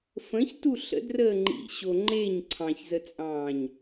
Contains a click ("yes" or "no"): yes